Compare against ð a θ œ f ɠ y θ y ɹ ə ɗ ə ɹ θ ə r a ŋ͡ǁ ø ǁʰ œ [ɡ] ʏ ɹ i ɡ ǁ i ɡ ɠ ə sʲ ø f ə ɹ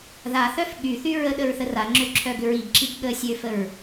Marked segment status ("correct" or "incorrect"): correct